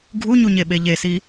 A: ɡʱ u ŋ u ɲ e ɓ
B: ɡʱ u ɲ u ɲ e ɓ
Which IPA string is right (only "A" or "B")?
B